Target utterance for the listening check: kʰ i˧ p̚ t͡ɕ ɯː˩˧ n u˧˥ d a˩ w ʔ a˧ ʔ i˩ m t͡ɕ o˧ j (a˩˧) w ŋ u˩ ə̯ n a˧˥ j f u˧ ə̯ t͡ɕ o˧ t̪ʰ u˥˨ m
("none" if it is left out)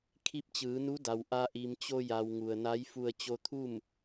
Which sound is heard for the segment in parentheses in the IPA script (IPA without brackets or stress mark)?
a˩